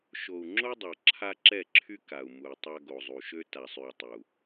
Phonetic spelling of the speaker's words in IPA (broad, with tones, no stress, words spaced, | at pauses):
ʃo˨u̯ŋ͡ǁo˦dˤa˨ ǁʰa˦ǁɛ˦˨ǁʰy˦ ka˨u̯mu˨i̯tˤa˦ɡo˨ zˤu˨ʃø˦ ta˨sˤy˨u̯ tˤu˨